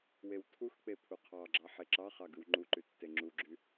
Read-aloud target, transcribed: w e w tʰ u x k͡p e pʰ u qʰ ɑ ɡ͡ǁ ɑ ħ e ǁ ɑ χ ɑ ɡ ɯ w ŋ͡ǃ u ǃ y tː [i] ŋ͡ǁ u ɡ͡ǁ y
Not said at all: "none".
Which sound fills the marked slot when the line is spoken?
e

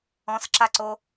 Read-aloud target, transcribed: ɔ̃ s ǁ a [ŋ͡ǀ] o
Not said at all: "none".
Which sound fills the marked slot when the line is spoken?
ǀ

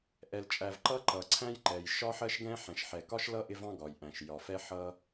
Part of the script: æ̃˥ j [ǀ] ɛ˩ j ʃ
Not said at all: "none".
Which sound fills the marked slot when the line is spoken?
ǃ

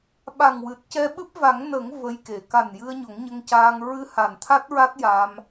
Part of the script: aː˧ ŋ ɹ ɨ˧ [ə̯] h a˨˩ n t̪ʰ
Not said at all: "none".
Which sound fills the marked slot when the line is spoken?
none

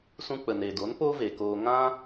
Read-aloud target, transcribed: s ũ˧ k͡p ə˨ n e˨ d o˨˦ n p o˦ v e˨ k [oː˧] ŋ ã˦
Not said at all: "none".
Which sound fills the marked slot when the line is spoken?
oː˧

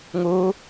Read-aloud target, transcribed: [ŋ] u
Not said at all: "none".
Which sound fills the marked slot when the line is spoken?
ŋ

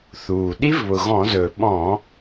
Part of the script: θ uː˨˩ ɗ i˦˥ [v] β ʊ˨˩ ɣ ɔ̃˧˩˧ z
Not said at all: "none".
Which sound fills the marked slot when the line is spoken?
v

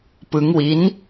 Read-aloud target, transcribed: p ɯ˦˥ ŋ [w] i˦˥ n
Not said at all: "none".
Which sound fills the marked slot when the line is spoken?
w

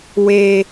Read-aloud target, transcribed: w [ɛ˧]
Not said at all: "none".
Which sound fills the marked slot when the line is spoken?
e˧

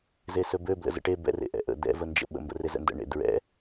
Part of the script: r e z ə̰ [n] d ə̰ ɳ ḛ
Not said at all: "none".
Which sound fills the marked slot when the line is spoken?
n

